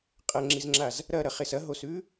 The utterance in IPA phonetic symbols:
qʼ ɐ ŋ͡ǁ i z ŋ͡ǁ a z | ɾ ɐ ɾ ɐ χ e s ɐ ɦ o s ʉ

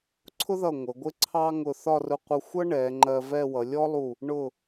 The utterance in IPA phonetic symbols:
ǀʰ ʊ˥ ð ʌ˧˩ ŋʷ ə˩˧ ɡʷ ɪ˥ ǀʰ ɑ˥ ŋ ʊ˧˩ θ ɒ˥˧ r ʊ˧ qʷ ʌ˧ xʷ ʌ˥ ɳ ɛ˩˧ ŋ͡ǃ ɜ˧ v ɛ˥˧ w ʌ˩˧ lʲ ɔ˥ lˠ u˧˩ | ɳ ʊ˧˩

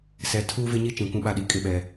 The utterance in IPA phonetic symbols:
s ɛ˨ tʰ uː˦ v ɪ˦ ɲ i˦ t͡ʃ ĩ˨ kʷ ũ˦ ɓ a˦˨ ɗ i˨ kʼ ɪ˦˨ ɓ ɛ˦

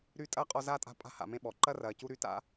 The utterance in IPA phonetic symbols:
ɾ y˥ tʼ ɐː˥ qʼ ɔ˦ z aː˥ tʼ a̤˦ pʼ a̤˥ h a̰˨ m ẽ˥ ɓ ɔ˩ ǃ ɐ˥ r ɐː˨ c u˥ ɾ y˥ t a̰˥

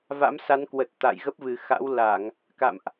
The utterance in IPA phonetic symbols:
v a̰˧˥ m s a˨˦ n k w ə˨˩ t̚ t̪ a̰˧˨ j ɣ ə˦˥ p̚ v ɨ˨˩ x a̰˧˥ w l a˧˩˨ ŋ | k a̰˧˨ m ʔ

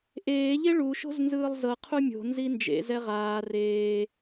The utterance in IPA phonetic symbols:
ʔ eː ʎ e ɭ u ʃ o̤ z n z ɯː lˠ z ɤ qʰ u mʲ o̤ n z i n d͡ʒ ḛ z ɛ ʁ aː r eː

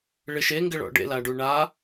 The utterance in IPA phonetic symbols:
ɭ ɪ ʃ e ŋ ɡ ɪ ɭ ɔ̰ ɖ ḛ l a ɖ u ɳ a

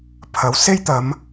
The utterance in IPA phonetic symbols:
pʰ ɐ˨˥ w s e˥ j t̪ ɐ˨˧ m

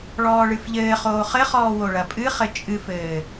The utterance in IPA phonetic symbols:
ɭ ɔː ɭ ɨ f ʎ ɘː χ oː χ ɘ χ ɔː w o ɭ ɐ pʼ ɨ χ ɘ t͡ʃʼ ɨ f ɘː

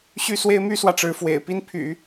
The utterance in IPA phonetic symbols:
ɕ y˥˩ s w e˥ ɪ̯ m y˥ s w ä˨ ʈ͡ʂ ɻ̩˧˥ f w ḛ˨˩ ɪ̯ p i˥ n pʰ y̰˨˩˦

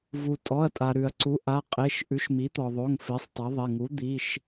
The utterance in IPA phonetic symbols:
v u˩ tʼ ɔ˩˧˩ ɐ̯ tʼ a˩ ɾ ʉ˩ ɐ̯ ǀ u˩˥ ʔ a˩˧˩ qʼ e˩˧˩ ʃ ʔ ʉ˩˥ ʃ m i˩˥ t̪ ɔ˩ ðˤ o˩˧˩ ŋ f e˩˥ sˤ tˤ a˩˥ ðˤ e˩˧˩ ŋ u˩˥ d̪ i˩˧˩ ʃ

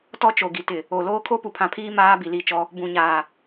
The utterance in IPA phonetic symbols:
t ɔ˦ t͡ʃ o˨ ɡ i˨ t ɪ˨ | o˨ l oː˦ kʰ o˦ p u˨ pʰ ã˨ pʰ iː˦ m aː˦ b i˨ l i˦˨ t͡ʃ ɔ˦ | b ũ˨ ɲ aː˨

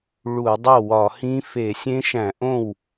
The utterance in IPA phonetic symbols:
ɭ u˧˩˧ dˤ o˥˩ w ɒ˧˩˧ h ĩ˦˥ f e˧˩˧ sʲ ẽ˦˥ ʃ æ̃˧˩˧ ʔ õ˥˩ w

